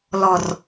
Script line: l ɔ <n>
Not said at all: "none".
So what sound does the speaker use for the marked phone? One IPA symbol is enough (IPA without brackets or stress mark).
r